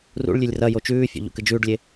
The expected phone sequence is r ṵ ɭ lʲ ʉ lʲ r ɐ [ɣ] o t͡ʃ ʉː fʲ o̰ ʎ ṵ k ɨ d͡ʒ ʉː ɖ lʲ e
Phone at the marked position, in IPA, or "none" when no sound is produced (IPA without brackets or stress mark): j